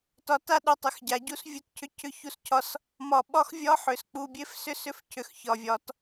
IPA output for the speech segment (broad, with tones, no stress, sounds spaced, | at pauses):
t ɒ˨ t a˦ ɗ u˨ tˤ ʏ˨˦ x ɟ a˨ ɟ u˦ s vʲ u˦ t cʰ ʏ˦ cʰ ʏ˦ ç u˦ s cʰ ɒ˦ s | m ɒ˨ ɓ ɒ˦ x vʲ ɒ˦ ħ ʏ˨ s k͡p u˨ bʲ e˦ f s ʏ˦ s ʏ˦ f cʰ ʏ˨ x ç ɒ˨ vʲ ɒ˨˦ t